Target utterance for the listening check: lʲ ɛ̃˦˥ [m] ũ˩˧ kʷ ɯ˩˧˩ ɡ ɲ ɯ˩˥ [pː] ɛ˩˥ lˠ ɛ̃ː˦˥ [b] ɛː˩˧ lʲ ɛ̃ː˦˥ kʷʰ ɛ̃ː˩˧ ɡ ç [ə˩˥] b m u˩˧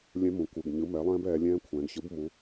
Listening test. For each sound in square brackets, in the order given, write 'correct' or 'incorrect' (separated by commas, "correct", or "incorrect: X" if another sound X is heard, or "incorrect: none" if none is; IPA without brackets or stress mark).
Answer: correct, incorrect: m, correct, incorrect: ɯ˩˥